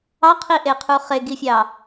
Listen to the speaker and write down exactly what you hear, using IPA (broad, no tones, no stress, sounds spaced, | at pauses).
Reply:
ɑ qʰ i ʔ e qʰ u χ e ɡ i fʲ ɑ